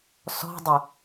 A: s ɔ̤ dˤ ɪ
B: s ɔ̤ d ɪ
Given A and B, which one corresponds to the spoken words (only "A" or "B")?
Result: A